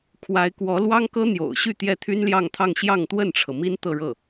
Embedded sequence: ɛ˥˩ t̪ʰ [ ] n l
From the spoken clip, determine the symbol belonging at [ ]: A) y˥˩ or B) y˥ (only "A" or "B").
B